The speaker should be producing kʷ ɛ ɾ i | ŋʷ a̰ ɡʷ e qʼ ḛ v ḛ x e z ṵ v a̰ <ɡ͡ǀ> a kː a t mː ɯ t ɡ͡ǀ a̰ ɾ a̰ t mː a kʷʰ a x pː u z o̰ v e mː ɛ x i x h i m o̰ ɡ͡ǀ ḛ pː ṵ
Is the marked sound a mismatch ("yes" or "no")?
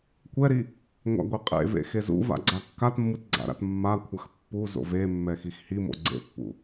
no